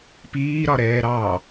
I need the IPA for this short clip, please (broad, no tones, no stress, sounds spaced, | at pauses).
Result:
p iː ɾ ɒ ɾ ɛː ɾ ɑ